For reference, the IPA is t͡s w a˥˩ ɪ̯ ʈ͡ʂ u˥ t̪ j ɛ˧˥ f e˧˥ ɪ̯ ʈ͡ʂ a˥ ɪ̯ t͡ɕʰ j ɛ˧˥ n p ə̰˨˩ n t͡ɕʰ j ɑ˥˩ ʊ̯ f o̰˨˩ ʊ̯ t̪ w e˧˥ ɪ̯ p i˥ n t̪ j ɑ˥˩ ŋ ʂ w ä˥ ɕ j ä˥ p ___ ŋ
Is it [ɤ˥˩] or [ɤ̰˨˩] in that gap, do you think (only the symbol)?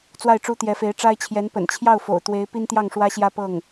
ɤ˥˩